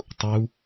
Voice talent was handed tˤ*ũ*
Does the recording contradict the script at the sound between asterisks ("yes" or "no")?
yes